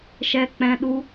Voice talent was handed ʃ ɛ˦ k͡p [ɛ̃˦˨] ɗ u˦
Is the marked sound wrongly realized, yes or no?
yes